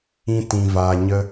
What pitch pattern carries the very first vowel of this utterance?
high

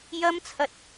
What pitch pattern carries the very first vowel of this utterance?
high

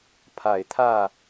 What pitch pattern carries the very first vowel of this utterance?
low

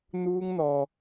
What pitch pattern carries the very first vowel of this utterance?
high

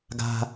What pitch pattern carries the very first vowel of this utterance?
low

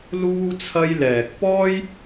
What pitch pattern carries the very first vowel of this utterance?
high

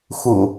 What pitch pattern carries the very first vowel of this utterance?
low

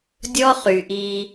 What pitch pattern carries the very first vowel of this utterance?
high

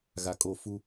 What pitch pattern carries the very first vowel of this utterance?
low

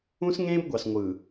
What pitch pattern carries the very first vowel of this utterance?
high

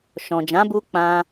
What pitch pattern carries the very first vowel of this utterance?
low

